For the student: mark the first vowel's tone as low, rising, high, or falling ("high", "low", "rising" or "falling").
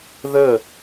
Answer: falling